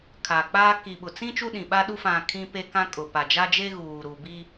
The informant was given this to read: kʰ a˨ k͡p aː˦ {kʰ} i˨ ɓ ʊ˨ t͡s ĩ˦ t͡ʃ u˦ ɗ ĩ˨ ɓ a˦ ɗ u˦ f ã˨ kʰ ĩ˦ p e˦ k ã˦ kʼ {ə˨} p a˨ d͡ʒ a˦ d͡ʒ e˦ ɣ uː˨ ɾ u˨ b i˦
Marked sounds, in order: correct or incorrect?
incorrect: k, incorrect: ʊ˨

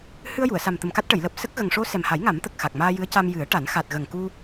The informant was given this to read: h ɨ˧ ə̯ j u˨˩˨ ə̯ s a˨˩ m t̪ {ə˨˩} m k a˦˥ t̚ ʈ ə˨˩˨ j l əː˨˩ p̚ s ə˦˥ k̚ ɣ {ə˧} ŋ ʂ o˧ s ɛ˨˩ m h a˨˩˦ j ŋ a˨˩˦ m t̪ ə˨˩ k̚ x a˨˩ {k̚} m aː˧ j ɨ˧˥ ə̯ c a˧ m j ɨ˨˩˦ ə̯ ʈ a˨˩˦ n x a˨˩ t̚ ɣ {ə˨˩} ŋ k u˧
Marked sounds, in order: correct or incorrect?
correct, incorrect: ə˨˩, correct, correct

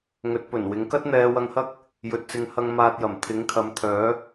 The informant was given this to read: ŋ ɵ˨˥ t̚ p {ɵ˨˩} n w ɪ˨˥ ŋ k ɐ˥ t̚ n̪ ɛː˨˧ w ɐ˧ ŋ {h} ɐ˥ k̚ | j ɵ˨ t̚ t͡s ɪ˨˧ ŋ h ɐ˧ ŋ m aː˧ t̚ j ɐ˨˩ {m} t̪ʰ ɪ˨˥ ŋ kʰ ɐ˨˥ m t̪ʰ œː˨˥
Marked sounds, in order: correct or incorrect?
correct, correct, correct

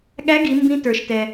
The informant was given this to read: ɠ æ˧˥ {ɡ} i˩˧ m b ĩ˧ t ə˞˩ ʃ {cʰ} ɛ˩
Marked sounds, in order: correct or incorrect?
correct, incorrect: t

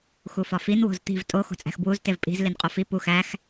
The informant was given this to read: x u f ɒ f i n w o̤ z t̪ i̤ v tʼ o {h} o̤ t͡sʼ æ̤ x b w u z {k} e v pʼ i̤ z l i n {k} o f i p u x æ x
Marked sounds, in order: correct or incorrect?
incorrect: x, incorrect: t, incorrect: qʼ

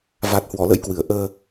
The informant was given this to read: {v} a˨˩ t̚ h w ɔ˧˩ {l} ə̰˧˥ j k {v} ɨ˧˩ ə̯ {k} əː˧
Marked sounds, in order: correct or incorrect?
correct, correct, incorrect: w, incorrect: ʔ

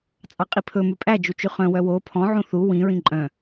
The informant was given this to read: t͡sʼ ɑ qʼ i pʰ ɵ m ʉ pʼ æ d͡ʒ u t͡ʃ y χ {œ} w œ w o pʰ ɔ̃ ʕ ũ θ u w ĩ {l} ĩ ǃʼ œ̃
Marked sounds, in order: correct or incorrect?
incorrect: œ̃, incorrect: ɹ

